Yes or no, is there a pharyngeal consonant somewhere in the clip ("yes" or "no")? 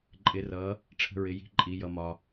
no